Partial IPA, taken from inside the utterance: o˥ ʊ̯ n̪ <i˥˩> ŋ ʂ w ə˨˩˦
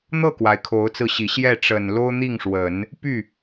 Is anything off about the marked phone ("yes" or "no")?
no